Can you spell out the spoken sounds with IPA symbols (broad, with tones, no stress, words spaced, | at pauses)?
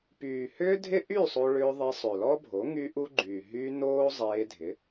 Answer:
pyː˨hʏː˦ dʱɪ˦ʔy˦˨ sˤo˧ɭʏː˧ðˤe˧ sˤø˨lɔ˦bʱo˨˦ ŋy˦ʔu˦ɡ͡ǃyː˨ ɦy˧ noː˦zˤeː˧dʱɪ˨˦